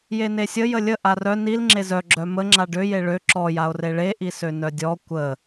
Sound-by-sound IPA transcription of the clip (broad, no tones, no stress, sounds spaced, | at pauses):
j e n e sʲ ə j ə lʲ ə ʔ a r œ n i l ŋ͡ǁ e z œ ɡ͡ǁ œ m ə ŋ͡ǁ a ɖ ø j e ɭ ø ǁ ɔ j a o̯ r e ɭ e ʔ i s ø n œ dʲ ɔ kʷ ə